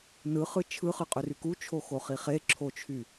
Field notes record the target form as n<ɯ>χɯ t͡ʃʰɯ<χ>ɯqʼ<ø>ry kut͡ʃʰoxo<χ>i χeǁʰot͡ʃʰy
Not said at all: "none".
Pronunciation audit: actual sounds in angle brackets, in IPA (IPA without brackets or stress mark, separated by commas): ɯ, χ, ø, χ